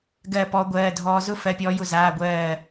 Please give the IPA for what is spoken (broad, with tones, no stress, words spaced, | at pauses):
ɡɜ˥˧pɔ˦˥ɡʷɜː˧˥˧ dʱɔː˦˥ zʊ˥˧ fɜ˧˥˧pʲɔː˦˥jʊ˥˧ zaː˧˥˧ɡʷɜː˥˧